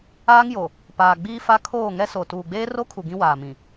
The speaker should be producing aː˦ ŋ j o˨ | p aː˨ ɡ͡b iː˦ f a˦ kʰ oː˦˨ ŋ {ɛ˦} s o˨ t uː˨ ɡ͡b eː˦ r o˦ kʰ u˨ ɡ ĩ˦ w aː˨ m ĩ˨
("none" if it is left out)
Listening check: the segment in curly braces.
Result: ɛ˦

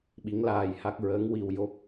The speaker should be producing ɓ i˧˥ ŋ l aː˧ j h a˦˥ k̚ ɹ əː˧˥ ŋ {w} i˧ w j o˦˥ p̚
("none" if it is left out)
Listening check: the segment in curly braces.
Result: w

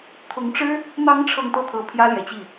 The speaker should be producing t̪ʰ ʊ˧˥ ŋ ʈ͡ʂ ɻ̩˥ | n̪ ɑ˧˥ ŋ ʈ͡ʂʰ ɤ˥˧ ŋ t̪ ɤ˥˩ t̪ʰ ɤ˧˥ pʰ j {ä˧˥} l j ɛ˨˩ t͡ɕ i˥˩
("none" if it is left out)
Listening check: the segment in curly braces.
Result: ä˥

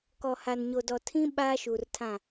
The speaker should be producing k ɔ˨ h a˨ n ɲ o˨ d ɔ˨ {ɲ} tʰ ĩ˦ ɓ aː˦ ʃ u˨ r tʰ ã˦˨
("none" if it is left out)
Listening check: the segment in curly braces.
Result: none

